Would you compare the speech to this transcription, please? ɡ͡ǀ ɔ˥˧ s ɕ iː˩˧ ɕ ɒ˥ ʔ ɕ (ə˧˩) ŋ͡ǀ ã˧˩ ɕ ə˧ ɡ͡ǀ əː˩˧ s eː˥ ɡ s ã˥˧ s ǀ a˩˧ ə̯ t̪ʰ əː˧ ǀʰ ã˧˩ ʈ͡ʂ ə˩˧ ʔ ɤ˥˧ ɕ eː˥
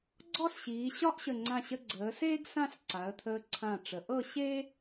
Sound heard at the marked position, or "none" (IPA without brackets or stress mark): ə˧˩